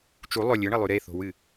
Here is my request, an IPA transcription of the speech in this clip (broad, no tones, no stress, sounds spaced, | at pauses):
t͡ʃ u lˠ ɵ lʲ ɨ ɳ ɐ lˠ ʉ ɾ e θ o̤ w ɨ